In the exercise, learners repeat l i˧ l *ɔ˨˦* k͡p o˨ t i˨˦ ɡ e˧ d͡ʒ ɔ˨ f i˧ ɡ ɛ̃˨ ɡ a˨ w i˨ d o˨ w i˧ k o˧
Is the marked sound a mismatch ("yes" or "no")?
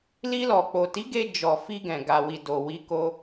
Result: yes